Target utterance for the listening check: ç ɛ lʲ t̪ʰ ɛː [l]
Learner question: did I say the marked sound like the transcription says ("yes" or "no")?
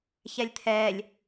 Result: no